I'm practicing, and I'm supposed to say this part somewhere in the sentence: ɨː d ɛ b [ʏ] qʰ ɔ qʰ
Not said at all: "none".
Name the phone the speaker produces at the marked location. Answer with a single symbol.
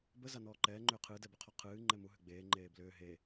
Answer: ʏ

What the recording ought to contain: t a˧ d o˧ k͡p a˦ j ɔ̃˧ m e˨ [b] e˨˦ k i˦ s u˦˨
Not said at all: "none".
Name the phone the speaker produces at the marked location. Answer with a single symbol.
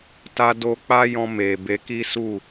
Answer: b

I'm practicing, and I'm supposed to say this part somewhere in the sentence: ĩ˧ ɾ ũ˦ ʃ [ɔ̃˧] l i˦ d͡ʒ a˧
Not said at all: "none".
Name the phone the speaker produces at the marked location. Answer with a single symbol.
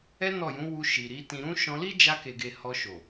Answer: ɔ̃˧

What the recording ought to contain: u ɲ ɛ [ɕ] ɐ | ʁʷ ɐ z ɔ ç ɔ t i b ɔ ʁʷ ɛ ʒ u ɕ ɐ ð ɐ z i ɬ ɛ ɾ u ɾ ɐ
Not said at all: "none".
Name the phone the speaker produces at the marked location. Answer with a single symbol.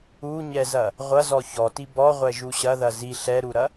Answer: z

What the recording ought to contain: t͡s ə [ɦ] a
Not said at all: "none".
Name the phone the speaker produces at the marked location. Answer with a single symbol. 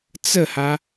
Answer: h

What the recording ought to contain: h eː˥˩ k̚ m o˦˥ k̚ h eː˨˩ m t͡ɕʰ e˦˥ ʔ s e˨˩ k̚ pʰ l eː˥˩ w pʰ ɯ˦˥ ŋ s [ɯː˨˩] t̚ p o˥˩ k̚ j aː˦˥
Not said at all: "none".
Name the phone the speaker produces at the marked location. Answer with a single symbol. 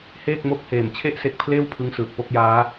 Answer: ɯː˨˩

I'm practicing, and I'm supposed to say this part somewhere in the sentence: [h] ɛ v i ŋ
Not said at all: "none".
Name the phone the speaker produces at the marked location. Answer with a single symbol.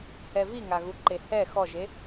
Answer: h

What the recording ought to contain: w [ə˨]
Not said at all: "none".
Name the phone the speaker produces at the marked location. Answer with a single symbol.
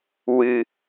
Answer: ɨ˨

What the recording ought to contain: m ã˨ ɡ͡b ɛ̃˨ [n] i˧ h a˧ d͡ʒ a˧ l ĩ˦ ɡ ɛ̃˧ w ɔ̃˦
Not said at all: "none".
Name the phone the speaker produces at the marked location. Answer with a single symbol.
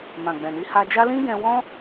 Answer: n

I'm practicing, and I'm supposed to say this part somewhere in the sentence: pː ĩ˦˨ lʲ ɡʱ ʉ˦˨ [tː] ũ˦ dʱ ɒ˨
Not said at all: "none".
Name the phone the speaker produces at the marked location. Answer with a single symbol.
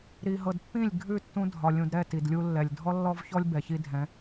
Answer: tː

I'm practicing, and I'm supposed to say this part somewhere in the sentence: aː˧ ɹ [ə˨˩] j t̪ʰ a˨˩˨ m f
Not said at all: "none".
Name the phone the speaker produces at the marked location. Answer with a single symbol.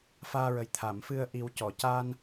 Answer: ə˨˩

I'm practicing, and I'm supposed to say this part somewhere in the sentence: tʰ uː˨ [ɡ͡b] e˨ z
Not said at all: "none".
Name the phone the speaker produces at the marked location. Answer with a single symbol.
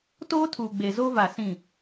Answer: ɡ͡b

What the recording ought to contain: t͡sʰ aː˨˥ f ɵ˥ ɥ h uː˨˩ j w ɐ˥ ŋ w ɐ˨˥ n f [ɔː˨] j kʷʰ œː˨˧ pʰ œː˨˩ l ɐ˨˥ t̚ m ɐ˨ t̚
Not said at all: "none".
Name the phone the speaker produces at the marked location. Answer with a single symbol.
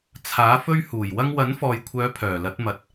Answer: ɔː˨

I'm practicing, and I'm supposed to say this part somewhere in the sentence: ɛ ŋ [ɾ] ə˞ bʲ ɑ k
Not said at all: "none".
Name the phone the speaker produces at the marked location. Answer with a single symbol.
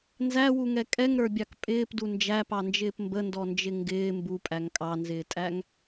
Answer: ɾ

